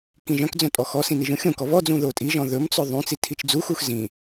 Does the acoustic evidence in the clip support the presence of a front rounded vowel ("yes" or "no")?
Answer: yes